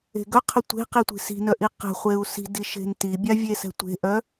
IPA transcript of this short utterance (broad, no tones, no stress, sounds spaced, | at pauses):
e̤ ɡ œ qʰ ɘ tʷ e̤ q i tʷ i̤ s i̤ n œ ʔ i q ɛ̤ χʷ e u̯ s i̤ d i ʃ e̤ n t i bʲ a vʲ e s ɛ̤ tʷ e̤ ʔ œ